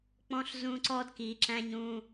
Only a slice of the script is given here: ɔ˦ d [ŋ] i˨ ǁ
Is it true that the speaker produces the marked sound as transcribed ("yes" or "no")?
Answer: no